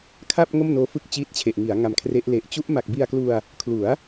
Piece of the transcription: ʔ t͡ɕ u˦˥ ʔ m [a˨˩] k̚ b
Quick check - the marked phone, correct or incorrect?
correct